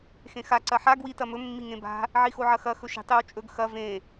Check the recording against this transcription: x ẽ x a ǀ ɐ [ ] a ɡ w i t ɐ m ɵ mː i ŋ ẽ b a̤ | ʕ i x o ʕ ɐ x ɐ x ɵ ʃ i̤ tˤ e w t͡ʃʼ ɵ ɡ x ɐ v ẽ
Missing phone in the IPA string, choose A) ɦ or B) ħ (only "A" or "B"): B